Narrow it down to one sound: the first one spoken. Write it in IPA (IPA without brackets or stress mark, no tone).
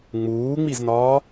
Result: ŋ͡m